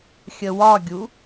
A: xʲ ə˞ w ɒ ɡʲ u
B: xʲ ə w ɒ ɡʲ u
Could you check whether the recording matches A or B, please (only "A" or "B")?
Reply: B